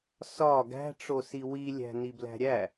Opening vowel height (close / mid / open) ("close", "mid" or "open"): open